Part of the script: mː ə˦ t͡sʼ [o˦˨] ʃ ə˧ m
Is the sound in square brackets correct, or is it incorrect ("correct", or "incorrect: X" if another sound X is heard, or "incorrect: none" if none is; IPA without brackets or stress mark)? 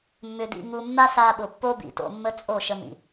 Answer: correct